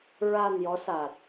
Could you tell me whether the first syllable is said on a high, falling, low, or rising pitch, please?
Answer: low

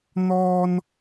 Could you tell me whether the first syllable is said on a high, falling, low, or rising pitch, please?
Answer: high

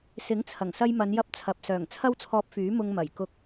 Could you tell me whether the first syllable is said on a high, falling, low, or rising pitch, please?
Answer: rising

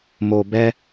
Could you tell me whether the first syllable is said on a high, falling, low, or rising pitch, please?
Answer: low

